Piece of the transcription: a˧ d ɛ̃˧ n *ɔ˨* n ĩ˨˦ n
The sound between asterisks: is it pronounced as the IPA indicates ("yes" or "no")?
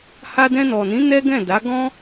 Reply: yes